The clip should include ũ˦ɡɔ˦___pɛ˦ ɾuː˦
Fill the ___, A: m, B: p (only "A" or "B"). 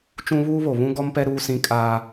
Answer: A